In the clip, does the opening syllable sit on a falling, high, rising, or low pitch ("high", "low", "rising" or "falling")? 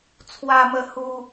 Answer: low